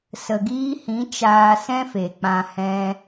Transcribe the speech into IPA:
s ə˨ ɡ iː˧ h ĩ˨˦ t͡ʃ aː˧ s ɛ̃˦ f e˨ k͡p ã˧ h ɛ̃˧

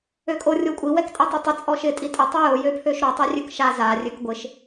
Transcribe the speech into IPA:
ø kʼ o rʲ o kʷʼ i w ɛ k tʼ ɛ tˤ ø tˤ ɪ t͡sʼ ɔ ʃ ɪ tʼ i tʼ ə tˤ ɪ j o j ø pʰ ø ʃ ɾ o tˤ ø rʲ ø k ʃ a z a rʲ ø k ɡʷ ɪ ʃ

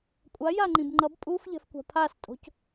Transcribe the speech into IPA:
kʷʼ a j a ŋ͡ǃ ĩ b ŋ͡ǃ ʌ b pʼ u f ʎ ɛ̤ f kʷ a̤ pʰ a s tʼ o̤ c

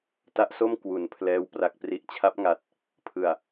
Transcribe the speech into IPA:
t a˦˥ ʔ s o˥˩ m k w u˩˦ n pʰ l ɛː˦˥ w p r a˨˩ k̚ p r i˨˩ ʔ t͡ɕʰ a˦˥ p̚ ŋ a˨˩ t̚ | pʰ ɯ˨˩ a̯

